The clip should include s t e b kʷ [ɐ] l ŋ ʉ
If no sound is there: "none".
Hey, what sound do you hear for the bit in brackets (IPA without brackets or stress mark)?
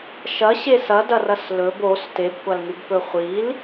a